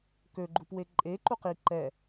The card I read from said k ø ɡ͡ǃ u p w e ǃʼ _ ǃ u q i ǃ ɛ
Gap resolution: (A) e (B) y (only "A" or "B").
A